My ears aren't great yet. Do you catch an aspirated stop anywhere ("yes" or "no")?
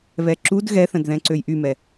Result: no